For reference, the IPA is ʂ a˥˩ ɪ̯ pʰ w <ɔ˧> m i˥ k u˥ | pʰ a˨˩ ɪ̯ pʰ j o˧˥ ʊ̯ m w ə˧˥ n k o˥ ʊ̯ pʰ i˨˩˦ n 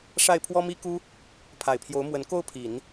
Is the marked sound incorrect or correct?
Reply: incorrect